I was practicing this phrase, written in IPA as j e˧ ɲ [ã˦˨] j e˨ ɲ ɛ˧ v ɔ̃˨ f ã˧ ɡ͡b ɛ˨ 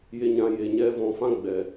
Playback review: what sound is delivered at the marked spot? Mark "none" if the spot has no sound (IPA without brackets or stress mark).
ã˧